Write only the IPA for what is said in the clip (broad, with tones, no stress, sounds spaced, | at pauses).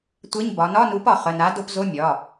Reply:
tʷ e˧˥˧ ɲ b ɒ˩˧ n ɒ˧˥˧ n u˨˥ p ɒ˩˧ χ ə˩˧˩ n a˨˥ d o˧˥˧ p z o˧˥˧ mʲ ɒ˩˧˩